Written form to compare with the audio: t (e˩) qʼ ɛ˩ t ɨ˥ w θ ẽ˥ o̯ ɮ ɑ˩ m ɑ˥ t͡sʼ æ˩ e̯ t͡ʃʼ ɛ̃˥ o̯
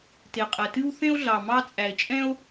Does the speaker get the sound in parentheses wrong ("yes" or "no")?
no